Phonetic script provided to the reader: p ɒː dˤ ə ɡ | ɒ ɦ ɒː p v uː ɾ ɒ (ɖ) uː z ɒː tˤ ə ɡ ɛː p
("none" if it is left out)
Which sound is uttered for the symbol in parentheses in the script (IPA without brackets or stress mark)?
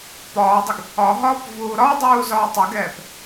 dˤ